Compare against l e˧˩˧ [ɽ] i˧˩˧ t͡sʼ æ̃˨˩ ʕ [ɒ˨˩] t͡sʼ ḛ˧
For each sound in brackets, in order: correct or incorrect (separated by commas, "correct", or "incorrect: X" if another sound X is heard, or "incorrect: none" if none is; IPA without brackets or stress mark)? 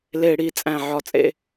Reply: correct, incorrect: ɒ˧